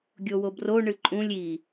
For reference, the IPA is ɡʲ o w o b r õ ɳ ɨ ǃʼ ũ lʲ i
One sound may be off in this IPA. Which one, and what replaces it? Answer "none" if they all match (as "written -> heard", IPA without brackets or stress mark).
õ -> o